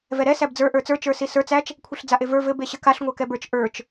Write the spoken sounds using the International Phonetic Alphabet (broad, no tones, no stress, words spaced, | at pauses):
vɛɾɛ sæbd͡zə˞ ʔə˞t͡sə˞ t͡ʃə˞sisə˞t͡s æt͡ʃ | kʷʰiɬd͡zaʔevə˞ vɘ beɕɘkaɬ ŋʷakɛbə˞t͡ʃ ʔə˞t͡ʃ